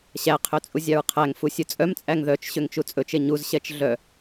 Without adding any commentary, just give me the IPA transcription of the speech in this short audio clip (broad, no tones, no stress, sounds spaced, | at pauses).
ɕ æ qʰ ø t͡sʼ u zʲ ɑ ɹ qʰ æ ŋ f u sʲ ɵ t͡sʼ œ m t͡sʼ æ ŋ ð œ t͡ʃ ɕ ø ŋ t͡ʃ u t͡sʼ ɵ t͡ʃ e ɲ u z ɕ ɛ t͡ʃ ɮ œ